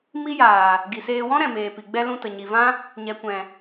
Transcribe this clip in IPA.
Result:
mi˦jaː˨ | ɡi˨seː˧ wɔ̃˦ ɾɛ̃˨meː˨pi˨ɡ͡bɛ˦ lũ˧tə˨ɲi˨vã˦ | ɲɛ˨kʷɛ̃˨

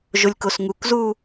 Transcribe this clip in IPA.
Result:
ʒolʲkosŋukzuː

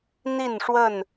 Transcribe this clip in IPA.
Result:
n̪i˥˨nʂwə˥˨n

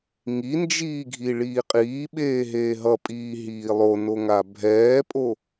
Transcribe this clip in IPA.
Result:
ŋind͡ʒiːɡʱi ɭiːqʼiːɓeː ɦeːɦʌpʼiː ɦiːlˠonoŋa bʱɛːpʼo

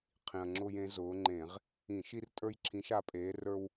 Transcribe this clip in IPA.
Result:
qʰĩ˨˩ɐ̯ ŋ͡ǁʊ˦j ẽ˨˦zʊː˨˦ŋ͡ǃẽ˧˩˧ʁ | ĩ˧˩˧ ʃi˦rtʼə˞˦jǁʰĩ˨˦ʃ a˨˦pʼeː˨˦rə˞˦w

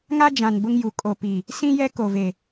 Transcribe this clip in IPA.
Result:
ŋa˦d͡ʒã˨n bʊ˦ŋju˨ kʼo˨pi˨ | sĩ˦jɛ˦ ko˨ve˨

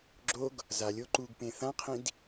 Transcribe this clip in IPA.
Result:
ɡ͡ǁoɡ | zalʲo ǃuɡpẽ θãqʰĩd

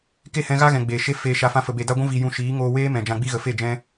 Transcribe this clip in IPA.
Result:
ke˦˨hɛ̃˧ɣa˦ɣɛ̃˨ ɡ͡beː˨ ʃe˧ feː˨ʃa˨ fã˧fə˨be˨ da˧ɡʷũ˧viː˨ jũ˨ ʃiː˨˦ ŋoː˧weː˦ mɛ̃˨d͡ʒã˧ɡ͡bi˦ɣə˨ fe˦˨d͡ʒɛ̃˦

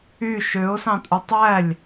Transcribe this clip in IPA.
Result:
y ʃøʊ̯sɑ̃tʼu tˤælʲ

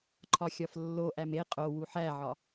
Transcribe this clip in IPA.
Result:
ǃʰɒxʲɒflːoʔæm e qʼo wuħæʕɒ

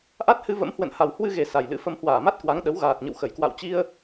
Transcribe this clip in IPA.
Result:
ʔa˦˥t̚hɨ˧və̰˧˥mhwə̰˧˨n ha˨˩w hwɨ˧ɣe˨˩ sa˨˩jlɨ̰˧˥fə˧m hwaː˧˩ma˦˥t̚ kwa˨˦ŋɗə˨˦w ɣaː˨˩t̚ɲə̰˧˨wxə˧˩j kwa̰˧˨wt͡ɕi˧ə̯

